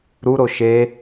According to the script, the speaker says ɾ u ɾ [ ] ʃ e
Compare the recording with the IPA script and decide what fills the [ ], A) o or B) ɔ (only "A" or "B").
A